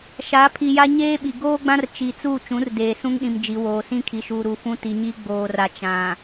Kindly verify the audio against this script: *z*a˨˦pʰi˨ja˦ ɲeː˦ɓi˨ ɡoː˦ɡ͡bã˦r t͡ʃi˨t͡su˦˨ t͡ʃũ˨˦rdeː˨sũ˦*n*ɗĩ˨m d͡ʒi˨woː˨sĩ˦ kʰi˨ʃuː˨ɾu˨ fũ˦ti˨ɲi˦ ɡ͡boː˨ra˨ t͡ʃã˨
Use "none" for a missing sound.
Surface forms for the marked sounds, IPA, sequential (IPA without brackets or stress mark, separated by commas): ʃ, ŋ